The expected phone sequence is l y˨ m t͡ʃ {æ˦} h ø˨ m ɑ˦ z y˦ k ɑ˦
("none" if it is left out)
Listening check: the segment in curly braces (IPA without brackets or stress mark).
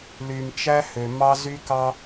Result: æ˦